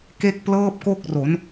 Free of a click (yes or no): yes